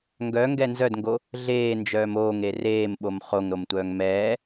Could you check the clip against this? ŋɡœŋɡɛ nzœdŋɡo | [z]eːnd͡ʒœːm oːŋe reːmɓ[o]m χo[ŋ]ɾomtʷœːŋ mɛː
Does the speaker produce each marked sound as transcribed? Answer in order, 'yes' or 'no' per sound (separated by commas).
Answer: no, yes, yes